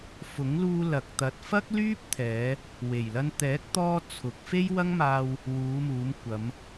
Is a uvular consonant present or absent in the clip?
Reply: absent